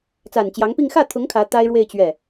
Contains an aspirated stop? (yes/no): yes